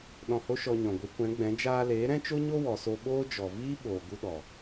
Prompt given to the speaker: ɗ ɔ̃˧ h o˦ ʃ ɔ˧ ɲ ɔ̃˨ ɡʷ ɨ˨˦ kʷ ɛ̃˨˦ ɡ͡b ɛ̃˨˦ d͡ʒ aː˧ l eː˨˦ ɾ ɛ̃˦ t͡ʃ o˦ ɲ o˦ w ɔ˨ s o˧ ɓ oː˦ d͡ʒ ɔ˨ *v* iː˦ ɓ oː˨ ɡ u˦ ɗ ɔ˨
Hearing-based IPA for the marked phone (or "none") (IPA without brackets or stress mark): v